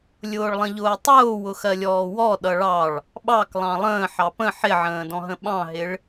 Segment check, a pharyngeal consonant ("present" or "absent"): present